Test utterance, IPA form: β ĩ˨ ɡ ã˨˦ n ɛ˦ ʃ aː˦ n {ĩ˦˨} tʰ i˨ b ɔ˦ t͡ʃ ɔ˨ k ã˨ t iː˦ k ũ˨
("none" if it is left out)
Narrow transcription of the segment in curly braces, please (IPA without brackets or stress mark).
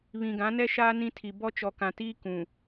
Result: ĩ˦